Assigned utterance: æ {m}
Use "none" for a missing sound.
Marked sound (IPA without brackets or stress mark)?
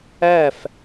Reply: f